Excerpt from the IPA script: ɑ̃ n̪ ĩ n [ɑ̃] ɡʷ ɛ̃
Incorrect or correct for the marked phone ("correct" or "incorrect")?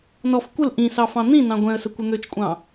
correct